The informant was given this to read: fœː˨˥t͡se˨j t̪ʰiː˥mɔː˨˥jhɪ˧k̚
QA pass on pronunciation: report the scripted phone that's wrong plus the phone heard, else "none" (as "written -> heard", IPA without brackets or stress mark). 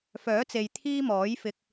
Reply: h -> f